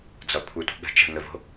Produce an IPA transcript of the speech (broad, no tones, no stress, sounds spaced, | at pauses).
d͡z ɒ kʷʰ ə˞ tʷ ə̤ ɠ ə̤ t͡ʃ ə̤ ŋ ə v o̤